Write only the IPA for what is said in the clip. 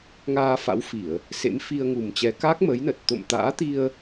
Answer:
ŋ aː˧ f a̰˧˥ w f i˧˩˨ ə̯ | s ḛ˧˥ m f i˧ ə̯ ŋ u˨˩ m t͡ɕ ɛ˨˦ k aː˦˥ k̚ m ə˨˦ j n ə˨˩ t̚ t̪ o̰˧˨ m t̪ a̰ː˧˥ t̪ i˧ ə̯

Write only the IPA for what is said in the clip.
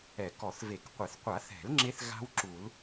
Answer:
ɛ˨˩˦ k ɔ˨˩˦ θ v e˨˩˦ k qʷ ɛ˨˩˦ θ qʷ a˨˩˦ θ ɛ̤˨˩˦ l ŋ͡ǁ e˦˥ θ ɣ a̤˦˥ w ǁ u˨˩˦ l

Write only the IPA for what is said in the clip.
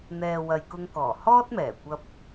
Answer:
n̪ ɛː˨ w ɐ˨ j k ʊ˧ ŋ k ɔː˨˩ h ɔː˥ t̚ m ɛː˨˩ kʷ ɐ˧ p̚

